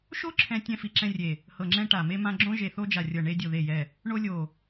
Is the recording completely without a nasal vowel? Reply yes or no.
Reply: no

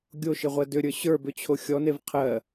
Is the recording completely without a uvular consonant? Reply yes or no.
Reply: no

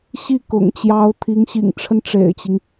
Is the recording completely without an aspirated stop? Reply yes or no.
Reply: no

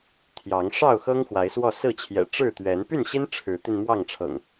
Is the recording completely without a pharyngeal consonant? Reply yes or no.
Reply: yes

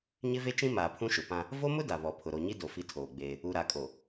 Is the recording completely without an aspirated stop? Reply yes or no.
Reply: no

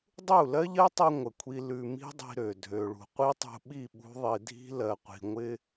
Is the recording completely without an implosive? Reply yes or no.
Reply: no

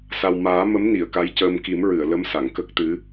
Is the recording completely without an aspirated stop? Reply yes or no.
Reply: yes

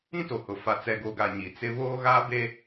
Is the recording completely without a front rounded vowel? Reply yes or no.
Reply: yes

